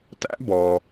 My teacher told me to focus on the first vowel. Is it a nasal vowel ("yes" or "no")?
no